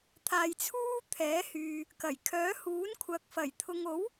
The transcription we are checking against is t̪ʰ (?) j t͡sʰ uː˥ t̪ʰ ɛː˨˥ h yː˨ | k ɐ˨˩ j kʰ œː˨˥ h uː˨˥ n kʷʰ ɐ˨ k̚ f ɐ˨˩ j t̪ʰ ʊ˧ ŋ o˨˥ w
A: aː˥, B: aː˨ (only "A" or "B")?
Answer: B